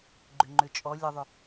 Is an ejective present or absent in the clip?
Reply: present